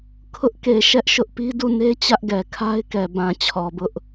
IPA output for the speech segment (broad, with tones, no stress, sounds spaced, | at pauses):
kʰ ʊ˦ ʔ k e˨ ʃ ɛ˦ ʔ ʃ ʊ˦ ʔ p i˦ d u˦˨ n e˦ t͡ɕ ä˦ ʔ ɡ ɛ˨ kʰ a˦ ɪ̯ k ɛ˨ b ã˨ t͡ɕʰ ɔ˨ b ʊ˦ ʔ